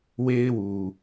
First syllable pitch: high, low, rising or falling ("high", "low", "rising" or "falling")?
high